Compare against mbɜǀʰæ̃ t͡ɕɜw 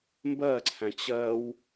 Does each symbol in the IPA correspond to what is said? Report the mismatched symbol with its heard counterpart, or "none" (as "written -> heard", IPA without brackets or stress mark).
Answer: none